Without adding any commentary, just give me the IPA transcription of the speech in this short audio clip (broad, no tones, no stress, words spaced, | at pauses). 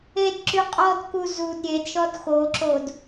ed ǁyqʼɔdku zud ɾʲed ʃɔdxoǁod